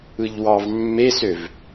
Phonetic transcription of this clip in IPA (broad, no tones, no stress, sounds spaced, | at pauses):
ɯ ʎ w ɑ v mː e s ø v